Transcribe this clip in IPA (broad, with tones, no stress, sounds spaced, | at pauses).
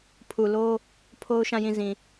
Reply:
pʰ u˨ l o˦ | pʰ o˦ ʊ̯ ʃ ã˦˨ j ĩ˦˨ z ĩ˨